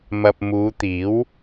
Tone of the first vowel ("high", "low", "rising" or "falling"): low